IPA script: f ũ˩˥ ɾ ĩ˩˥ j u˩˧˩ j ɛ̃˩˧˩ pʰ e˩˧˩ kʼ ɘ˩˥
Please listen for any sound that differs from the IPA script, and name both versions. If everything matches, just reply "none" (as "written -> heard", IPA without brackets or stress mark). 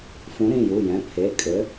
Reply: ĩ˩˥ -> ĩ˩˧˩